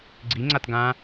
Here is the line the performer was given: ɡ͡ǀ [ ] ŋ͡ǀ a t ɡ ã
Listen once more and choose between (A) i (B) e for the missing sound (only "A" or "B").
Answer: A